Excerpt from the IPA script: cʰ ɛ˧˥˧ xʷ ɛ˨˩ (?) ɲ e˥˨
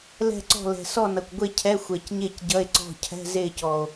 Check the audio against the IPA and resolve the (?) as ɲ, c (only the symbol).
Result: c